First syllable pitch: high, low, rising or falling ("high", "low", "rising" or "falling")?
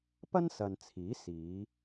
high